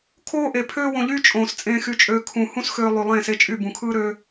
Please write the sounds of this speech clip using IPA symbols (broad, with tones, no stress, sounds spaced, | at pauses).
kʰ oː˦ ʔ e˨ pʰ øː˦ w õ˧ ʎ yː˦ t͡ʃʼ õː˨ s t͡sʼ ẽː˧ x y˧ t͡ʃʼ øː˧ kʰ ũ˧ h ũ˦ s x øː˧ lˠ y˨ lˠ ẽː˦˨ s e˦ t͡ʃʼ y˦˨ b ũ˨ kʰ ɯː˦ ɾ ø˦